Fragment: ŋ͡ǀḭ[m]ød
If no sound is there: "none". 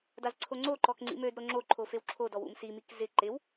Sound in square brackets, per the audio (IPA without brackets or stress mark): m